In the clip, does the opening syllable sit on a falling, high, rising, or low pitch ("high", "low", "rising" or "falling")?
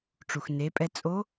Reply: low